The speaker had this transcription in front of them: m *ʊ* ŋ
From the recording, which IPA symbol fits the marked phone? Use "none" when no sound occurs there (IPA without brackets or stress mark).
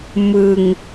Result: ɯ